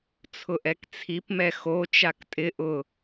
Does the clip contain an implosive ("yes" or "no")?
no